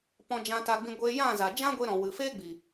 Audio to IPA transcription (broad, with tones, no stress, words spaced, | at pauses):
pɔ̃˧d͡ʒã˧ta˧ɡ͡bĩ˧ ɡʷeː˧jã˦˨ za˨d͡ʒã˦ɡʷe˧ɾɔ̃˨ wɨ˨ feː˦ɡ͡bi˨